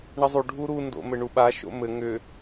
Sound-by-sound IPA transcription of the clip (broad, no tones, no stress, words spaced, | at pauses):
ɳəzˤu ɖʱuɾu ndo̰mɘɳuɓa ʃo̰mɘ ŋʏ